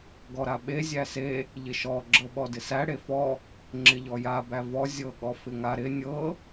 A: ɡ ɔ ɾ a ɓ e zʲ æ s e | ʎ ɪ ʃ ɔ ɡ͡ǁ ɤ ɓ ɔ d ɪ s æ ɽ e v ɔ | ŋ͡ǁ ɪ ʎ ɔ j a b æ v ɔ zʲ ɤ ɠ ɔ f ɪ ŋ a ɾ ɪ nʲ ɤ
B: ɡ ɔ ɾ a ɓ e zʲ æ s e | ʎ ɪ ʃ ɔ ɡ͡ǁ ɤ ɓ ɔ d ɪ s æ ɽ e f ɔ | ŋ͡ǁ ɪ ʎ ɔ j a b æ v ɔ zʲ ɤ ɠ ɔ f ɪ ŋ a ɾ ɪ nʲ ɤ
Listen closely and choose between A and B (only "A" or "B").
B